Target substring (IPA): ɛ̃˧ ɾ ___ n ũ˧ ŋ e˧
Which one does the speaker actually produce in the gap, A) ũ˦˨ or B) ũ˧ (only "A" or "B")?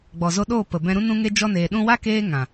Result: B